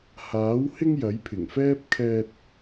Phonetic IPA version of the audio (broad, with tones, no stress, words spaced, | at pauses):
haː˨˥w hɪ˥ŋ jɐ˨˥jpʰɪ˨˩ŋfɛː˥p̚kʰɛː˧t̚